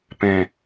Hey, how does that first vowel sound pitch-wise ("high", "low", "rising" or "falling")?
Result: low